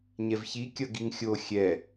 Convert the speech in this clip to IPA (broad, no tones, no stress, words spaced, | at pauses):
ɲɛvçi kʲʌɡiŋxʲo xʲɛ